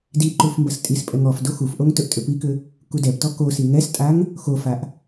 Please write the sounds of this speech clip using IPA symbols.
d i ǃ u f m b ɐ s tʼ i s pʼ ɛ ŋ ɔ f d o x u f ʔ o ŋ t ɵ ʔ tʼ ʏ p i k ʏ | k u d ɛ p t ɔ k o s i ŋ ɛ s tʼ a ŋ | x o f a ʔ

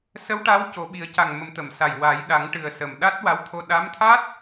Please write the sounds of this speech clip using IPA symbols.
s ə˧˥ w ʈ a˧˥ w c o˨˩˦ ɓ i˨˩˦ ə̯ c a˨˩ ŋ m ə˨˩ m t̪ ə˨˩˨ m s a˨˩ j w a˨˩˦ j ɗ a˨˩˦ ŋ ʈ ɨ˨˩ ə̯ s ə˨˩ m ɗ a˦˥ t̚ w a˧˥ w t̪ʰ o˧ ɗ a˧˥ m t̪ʰ a˦˥ t̚

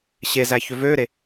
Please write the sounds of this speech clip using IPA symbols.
ɕ e z æ ç ø v øː ɾ e

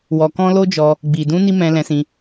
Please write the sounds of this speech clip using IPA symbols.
w ɔ˧ k ɔ̃˦ l o˦ d͡ʒ ɔ˧ | ɡ͡b i˨ d ũ˧ n i˦ m ɛ̃˧ l ɛ̃˧ s ĩ˧

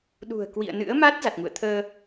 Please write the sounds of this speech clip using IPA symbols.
ɗ ṳ˨˩ ə̯ k w ḭ˧˨ ə̯ n ɨ̰˧˥ ə̯ m a˦˥ t̚ z a˨˩ t̚ ŋ ṵ˧˨ ə̯ t̪ʰ əː˧

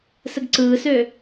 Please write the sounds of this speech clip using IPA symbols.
s ə ɡ ǀ ɯː s ø

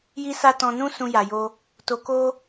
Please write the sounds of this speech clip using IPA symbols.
j i˦ s a˦ t ɔ̃˧ n ũ˦ s ũ˧ j a˨ j o˧ | t o˧ k o˦

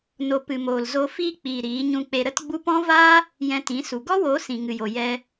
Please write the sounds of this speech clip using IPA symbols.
n o˧ p ɨ˨ m oː˨ l z o˧ f iː˧ k͡p iː˨ ɾ iː˨˦ ɲ ũ˧ k͡p e˧ ɾ ə˦ t ɡ͡b u˦ p ɔ̃˦ v aː˦ | j ɛ̃˧ t ĩ˨˦ s u˨ ɡ ɔ˦ w oː˨˦ s ĩ˨ ŋ ɨ˨ j o˨ j ɛ˧

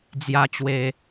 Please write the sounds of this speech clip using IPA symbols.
d͡z j a˧ t͡ɕ w e˨˩

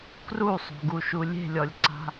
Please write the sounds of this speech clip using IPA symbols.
k r u sˤ o̤ ɡ u ʃ u lʲ e̤ lʲ ɔ lʲ ǀ a̤

